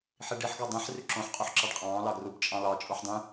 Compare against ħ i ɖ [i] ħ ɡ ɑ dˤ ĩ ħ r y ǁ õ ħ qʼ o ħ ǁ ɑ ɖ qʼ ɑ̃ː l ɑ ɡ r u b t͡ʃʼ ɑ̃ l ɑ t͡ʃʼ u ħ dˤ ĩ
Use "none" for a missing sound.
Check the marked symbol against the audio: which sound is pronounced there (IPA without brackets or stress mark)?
i